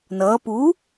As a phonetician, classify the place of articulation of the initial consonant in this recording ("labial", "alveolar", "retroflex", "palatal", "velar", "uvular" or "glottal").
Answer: alveolar